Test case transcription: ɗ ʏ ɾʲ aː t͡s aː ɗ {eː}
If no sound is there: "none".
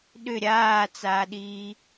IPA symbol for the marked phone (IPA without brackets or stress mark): iː